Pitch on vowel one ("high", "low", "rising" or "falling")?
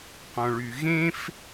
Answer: low